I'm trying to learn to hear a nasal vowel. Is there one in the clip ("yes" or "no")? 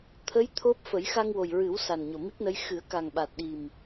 no